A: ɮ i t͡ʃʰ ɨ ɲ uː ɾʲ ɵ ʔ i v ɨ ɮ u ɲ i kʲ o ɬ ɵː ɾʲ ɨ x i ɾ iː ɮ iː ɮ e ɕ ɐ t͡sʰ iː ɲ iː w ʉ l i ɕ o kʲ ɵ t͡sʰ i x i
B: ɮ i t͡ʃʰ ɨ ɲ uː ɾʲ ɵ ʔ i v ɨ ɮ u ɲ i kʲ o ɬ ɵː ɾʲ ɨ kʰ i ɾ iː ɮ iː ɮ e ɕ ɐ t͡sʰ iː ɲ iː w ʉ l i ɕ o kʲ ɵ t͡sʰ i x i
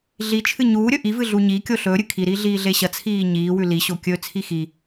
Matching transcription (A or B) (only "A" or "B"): B